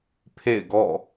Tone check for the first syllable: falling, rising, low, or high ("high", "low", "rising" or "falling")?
falling